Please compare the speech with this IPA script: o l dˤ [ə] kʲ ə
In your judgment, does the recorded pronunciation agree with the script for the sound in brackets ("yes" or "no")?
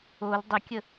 no